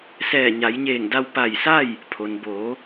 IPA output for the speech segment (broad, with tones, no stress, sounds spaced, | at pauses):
s ɛː˧˩ ɲ a˩˧ j ɲ eː˧˩ ŋ d a˧ w p a˧˩ j s a˥˨ j | pʰ o˩ n b oː˩˧